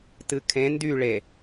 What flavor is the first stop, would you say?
plain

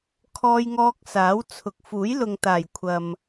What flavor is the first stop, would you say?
aspirated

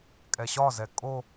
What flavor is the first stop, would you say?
ejective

